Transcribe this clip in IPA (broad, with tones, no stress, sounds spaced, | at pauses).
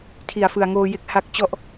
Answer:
tʰ i˨˩ a̯ f ɯ˨˩ a̯ ŋ oː˧ j e˦˥ k̚ h a˦˥ k̚ t͡ɕ ɔ˦˥ ʔ